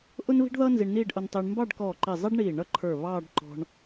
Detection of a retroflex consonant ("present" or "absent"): present